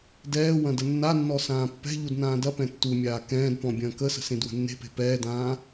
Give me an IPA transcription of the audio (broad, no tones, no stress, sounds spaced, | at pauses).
d ɛː w ɐ̃ d ə nː a nː ɔ s ãː pː ɛ̤ ʎ u d n ãː d ɐ p ɛ̃ tː u mʲ aː k ɛ̃ː d p ɔ̃ bʲ ɐ̃ː k ə s ə̤ s ẽ d w ə̤ nː e̤ p e̤ p ɛː d ãː